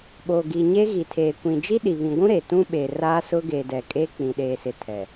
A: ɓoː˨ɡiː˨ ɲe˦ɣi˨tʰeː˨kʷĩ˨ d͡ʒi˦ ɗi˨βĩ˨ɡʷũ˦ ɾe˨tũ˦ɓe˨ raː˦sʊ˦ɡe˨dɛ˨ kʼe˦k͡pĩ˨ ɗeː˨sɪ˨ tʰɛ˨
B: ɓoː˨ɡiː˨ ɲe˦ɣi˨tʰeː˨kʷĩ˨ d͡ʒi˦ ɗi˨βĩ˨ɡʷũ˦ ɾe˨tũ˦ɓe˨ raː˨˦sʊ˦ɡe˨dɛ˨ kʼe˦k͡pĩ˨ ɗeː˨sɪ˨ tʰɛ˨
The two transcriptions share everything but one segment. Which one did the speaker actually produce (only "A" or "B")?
A